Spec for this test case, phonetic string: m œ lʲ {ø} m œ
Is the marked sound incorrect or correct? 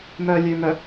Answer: correct